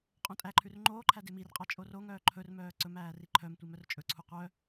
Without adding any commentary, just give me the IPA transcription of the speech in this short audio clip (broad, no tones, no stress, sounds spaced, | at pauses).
qʼ õ tʼ æ ǃʰ ʉ r ŋ͡ǃ oː ǃʰ æ d e m i r qʼ ɑ t͡ʃʼ o r o ŋ œː ǃʰ ɵ r m œː ǀ ɵ m æː r i ǃʰ œ m tʷ i m œ r t͡ʃʼ ɵ ǀʰ u qʷ œ